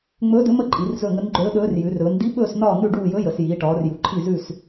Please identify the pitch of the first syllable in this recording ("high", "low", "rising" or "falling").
rising